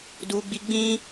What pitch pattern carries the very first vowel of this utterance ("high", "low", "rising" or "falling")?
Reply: high